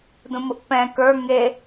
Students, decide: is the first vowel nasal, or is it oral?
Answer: nasal